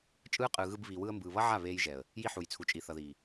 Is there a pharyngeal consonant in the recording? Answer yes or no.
yes